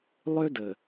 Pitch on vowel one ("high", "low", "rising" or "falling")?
high